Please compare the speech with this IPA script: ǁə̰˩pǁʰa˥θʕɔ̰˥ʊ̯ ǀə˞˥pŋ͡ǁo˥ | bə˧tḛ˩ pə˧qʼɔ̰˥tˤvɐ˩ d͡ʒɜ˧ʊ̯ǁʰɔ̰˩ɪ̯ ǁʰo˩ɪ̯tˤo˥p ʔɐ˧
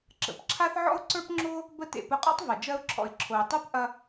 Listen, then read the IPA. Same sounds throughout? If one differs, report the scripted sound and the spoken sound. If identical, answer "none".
none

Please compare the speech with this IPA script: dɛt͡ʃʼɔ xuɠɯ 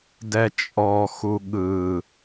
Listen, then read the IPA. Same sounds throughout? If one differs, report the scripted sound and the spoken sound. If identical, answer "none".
none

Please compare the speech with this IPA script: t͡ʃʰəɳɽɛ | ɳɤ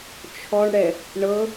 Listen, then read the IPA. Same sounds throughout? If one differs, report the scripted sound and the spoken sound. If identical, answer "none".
ə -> ɔ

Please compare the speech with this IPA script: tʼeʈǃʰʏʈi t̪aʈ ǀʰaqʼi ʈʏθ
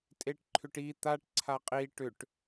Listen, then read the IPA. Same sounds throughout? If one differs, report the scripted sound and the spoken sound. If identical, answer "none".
θ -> ʈ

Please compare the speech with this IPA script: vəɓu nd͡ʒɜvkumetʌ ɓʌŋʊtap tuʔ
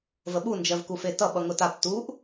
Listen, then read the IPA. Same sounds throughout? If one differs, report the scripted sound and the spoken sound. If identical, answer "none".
m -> f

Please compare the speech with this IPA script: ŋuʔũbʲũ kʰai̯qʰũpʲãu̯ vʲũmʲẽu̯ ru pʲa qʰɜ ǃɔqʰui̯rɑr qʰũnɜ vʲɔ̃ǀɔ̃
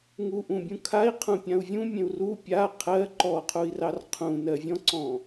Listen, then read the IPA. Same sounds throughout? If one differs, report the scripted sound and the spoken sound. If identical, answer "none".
none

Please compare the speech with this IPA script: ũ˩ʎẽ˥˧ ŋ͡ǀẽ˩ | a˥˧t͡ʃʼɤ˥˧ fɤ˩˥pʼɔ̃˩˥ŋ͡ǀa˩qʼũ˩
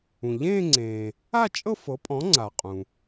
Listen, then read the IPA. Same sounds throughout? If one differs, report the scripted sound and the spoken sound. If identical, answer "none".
none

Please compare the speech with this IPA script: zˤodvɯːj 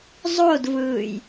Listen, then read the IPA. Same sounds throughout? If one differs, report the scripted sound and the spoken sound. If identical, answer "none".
none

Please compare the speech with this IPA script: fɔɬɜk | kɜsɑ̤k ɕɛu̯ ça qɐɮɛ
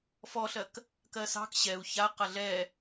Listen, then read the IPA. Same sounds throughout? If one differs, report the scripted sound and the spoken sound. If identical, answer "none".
none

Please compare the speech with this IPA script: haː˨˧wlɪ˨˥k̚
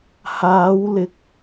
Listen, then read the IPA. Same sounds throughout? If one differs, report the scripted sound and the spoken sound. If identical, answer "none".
none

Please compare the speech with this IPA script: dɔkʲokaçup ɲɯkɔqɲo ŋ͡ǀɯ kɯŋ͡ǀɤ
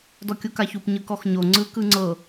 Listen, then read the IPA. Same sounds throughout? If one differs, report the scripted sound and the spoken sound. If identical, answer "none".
q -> x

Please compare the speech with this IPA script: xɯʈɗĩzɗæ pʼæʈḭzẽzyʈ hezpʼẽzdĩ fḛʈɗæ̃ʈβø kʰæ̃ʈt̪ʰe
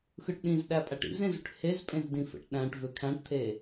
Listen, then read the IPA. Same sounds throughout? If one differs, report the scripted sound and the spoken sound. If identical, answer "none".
β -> v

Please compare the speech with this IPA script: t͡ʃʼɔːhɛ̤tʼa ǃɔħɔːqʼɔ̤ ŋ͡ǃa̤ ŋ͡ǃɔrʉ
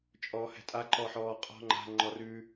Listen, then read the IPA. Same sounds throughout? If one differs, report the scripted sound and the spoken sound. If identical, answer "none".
none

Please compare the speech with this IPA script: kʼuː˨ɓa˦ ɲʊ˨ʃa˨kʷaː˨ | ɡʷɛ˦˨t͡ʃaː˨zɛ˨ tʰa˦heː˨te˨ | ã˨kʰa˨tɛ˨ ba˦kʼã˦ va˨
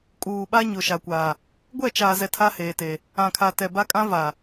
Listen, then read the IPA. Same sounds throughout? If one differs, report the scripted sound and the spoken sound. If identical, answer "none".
none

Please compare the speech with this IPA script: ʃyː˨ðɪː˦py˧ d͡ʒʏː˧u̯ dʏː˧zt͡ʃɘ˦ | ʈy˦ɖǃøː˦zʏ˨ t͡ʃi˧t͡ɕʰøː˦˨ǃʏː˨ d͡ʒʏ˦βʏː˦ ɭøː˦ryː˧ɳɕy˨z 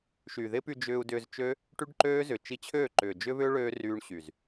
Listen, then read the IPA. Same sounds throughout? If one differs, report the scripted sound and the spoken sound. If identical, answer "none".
ɘ˦ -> ø˦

